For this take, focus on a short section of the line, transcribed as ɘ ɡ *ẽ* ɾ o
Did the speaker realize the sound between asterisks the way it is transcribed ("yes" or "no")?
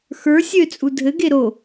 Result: no